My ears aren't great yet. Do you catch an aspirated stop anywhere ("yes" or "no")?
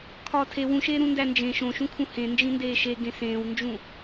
yes